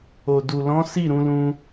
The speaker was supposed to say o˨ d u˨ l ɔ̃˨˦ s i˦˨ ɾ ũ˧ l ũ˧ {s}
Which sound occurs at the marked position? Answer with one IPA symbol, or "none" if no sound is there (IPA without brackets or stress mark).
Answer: none